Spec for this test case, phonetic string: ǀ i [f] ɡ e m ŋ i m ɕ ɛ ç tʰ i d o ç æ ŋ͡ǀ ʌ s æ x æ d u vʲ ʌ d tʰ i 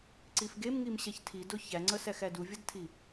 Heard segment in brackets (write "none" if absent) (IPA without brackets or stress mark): f